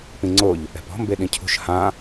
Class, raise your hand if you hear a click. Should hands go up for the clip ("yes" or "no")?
yes